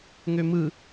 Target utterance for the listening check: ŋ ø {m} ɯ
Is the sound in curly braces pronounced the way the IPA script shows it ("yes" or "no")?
yes